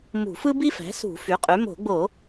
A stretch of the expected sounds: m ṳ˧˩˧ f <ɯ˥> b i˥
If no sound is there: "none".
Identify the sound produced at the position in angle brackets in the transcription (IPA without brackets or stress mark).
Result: ɯ˥